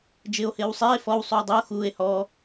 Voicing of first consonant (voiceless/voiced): voiced